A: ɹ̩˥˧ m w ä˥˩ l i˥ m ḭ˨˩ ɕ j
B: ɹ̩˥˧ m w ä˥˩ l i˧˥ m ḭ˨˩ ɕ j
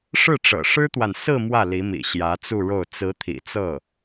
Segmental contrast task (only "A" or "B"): B